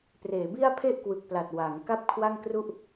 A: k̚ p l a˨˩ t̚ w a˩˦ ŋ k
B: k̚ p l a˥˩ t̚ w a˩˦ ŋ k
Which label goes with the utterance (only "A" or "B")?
A